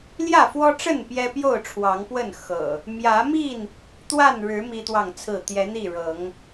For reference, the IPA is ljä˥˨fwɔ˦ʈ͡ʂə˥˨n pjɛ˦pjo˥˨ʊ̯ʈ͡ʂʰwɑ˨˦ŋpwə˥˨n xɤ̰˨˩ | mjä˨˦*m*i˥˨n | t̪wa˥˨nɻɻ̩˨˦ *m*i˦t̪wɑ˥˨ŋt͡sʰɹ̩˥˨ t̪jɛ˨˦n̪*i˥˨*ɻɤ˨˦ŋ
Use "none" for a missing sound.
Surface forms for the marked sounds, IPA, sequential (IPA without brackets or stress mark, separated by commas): m, m, i˥˨